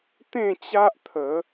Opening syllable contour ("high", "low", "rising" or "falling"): falling